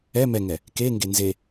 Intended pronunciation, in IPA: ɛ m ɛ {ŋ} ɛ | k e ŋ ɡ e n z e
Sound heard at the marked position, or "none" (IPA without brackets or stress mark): ŋ